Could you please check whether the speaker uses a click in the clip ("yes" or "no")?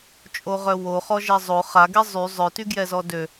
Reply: no